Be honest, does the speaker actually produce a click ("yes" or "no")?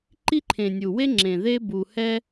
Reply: yes